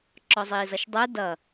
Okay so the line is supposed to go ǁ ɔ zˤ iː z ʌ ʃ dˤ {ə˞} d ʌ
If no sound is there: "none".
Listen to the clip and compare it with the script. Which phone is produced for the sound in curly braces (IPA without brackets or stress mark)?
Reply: ə˞